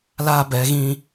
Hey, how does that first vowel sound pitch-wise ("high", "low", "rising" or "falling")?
high